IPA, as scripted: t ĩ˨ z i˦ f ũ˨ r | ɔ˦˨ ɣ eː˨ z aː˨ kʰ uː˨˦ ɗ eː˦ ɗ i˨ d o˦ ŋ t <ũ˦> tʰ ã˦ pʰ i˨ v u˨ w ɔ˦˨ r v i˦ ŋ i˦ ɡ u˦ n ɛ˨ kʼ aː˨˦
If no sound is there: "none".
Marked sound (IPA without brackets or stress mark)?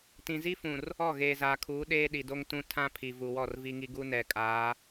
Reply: ũ˦